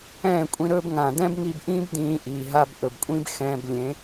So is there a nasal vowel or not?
yes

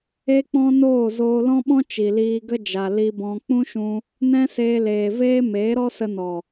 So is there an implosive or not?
yes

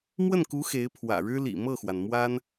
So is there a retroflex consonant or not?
yes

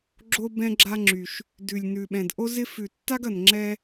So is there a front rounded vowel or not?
yes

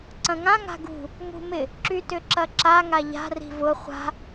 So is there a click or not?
yes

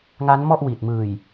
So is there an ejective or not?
no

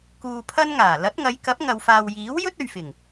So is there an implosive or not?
no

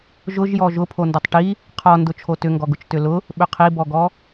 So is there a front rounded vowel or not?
yes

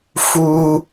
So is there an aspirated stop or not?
no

